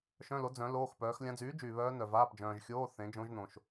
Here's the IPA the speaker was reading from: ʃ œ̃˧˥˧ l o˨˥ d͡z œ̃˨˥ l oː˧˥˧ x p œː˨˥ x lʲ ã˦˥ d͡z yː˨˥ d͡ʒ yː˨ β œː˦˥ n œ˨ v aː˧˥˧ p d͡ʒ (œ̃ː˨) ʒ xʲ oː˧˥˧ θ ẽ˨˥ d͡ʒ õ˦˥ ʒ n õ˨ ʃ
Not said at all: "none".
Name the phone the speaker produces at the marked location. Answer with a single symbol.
œ̃ː˨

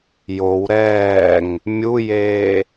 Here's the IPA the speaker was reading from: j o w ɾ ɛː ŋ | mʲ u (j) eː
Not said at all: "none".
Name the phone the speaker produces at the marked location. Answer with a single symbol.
j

